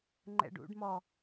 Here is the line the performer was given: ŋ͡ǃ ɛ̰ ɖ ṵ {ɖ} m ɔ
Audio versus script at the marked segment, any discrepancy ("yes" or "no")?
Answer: no